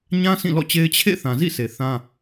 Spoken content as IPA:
ɲã˦ sĩ˦˨lɔ̰˦˨t͡ɕe˦ɪ̯ t͡ɕʰḛ˦˨ θã˨zḭ˦˨se˨ θã˦

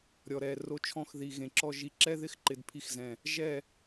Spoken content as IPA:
ɾʲɔ˨ ɾɛː˨ ro˧t͡ʃʰɔ̃˧x ði˨ɣẽ˨ǁɔ˧ ʒi˨ǁɛ˦ðɪ˦x ǃɪ˨dpʰi˧xzɛ̃˨ | ʒɛ˦˨

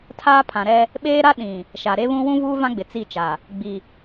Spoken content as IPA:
tʰaː˦pʰã˨ɾɛ˦ | ɓeː˦ɾa˦ ɗĩ˨ | ʃa˨ɾe˦βũ˦ wũ˦ vuː˦ vã˦ɡ͡bɪ˨ t͡si˦˨t͡ʃa˨ | ɡ͡bi˨

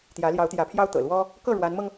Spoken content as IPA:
t̪jä˧˥ljɑ˧˥ʊ̯t̪jä˧˥pʰjɑ˥ʊ̯ t̪ɤ̰˨˩lwɔ˥ | kɤ˥˩ ɻwa˧˥nmɤ˧ŋ

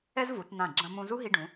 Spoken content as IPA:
ɛ˥zvu˩˧tn̪ã˧˩ ɡ͡ǁɐ̃˧mũ˧zu˥ ɦi˧ɖũ˩˧

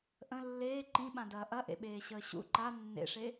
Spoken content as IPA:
ʔə̃ lːeː ǃĩɓãdɐː ʔɐʔḛɓeːɕəː ɕṵ ǃa nːḛʂe

